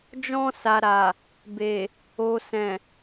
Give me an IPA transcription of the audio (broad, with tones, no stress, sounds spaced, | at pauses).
d͡ʒ ɔ̃˧ s a˨ ɾ a˨ | b e˨ | o˨ s ɛ̃˨